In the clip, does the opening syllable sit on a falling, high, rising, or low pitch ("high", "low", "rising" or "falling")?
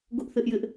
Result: high